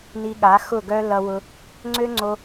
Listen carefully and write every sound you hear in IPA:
ni˧ɠa˨˦ xʊ˦˨ɡœ˦lʌ˧wʊ˧ | ŋ͡ǀø˦ŋ͡ǀo˧

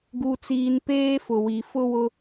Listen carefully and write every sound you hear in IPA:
ɡu˨t͡siː˨n peː˦fʊ˨wi˨ fʊ˦wʊ˦

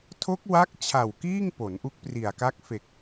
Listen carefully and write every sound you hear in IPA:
tʰo˦˥k̚wa˦˥k̚t͡ɕʰa˨˩w kiː˥˩ŋpo˩˦n ʔu˦˥k̚pri˨˩a̯ka˦˥k̚ fe˨˩k̚

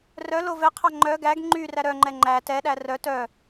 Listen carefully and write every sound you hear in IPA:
rœ lovɛqʰɑ ŋ͡ǃœ ɡæɡ ŋ͡ǃy ræɾœŋ͡ǃɛ ŋ͡ǃæ tɛɗæ rœ tœ

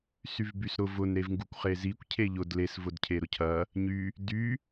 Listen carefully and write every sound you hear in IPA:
syvbysɾʊv ʊn ɾevŋɡukʷχezikʷ cʰeʎʊd les vʊdcʰeɾʊcʰɐ | ɲy | dy

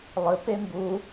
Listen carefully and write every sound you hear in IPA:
lˠɨ pembu

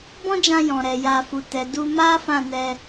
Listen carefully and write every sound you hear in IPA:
bɔ̃˦d͡ʒã˧ jɔ̃˨ɾɛ˨ja˧ fu˨tɛ˨du˧ ma˦ fã˦˨nɛ˧

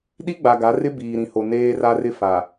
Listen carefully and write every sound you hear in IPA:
ɗi˦ɡ͡ba˨ɡa˨˦rɪ˦ biː˨ɾĩ˨ho˨ neː˦ra˦rɪ˦ fa˨

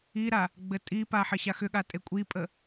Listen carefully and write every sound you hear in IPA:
iɾa | ɡ͡bɘtʼipa ħɘɕaxʏɠa tʼekʷʼipʼə

